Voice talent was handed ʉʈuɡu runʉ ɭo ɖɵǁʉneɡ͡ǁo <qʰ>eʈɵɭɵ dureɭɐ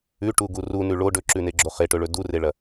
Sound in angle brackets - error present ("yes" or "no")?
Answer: yes